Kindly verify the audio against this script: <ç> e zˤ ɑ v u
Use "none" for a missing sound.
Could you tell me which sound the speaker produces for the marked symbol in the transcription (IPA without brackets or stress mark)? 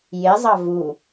j